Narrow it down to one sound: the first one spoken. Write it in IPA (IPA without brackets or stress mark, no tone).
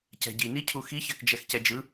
c